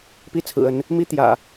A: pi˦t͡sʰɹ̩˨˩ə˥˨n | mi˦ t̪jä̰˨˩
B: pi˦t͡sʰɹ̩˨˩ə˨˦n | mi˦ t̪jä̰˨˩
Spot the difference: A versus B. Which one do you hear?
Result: B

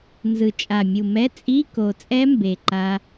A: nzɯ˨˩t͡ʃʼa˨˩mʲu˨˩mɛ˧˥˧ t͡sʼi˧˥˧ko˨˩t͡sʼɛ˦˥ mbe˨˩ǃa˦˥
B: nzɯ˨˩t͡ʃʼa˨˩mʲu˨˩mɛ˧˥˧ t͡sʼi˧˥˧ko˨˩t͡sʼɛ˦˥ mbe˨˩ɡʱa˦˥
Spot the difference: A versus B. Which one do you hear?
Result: A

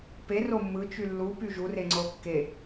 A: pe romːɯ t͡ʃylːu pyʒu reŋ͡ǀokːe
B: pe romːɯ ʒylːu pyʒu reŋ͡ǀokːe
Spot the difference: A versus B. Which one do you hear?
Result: A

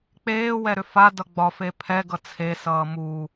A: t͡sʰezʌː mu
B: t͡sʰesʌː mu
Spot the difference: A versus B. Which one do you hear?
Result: B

